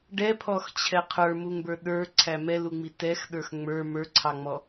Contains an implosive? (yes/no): yes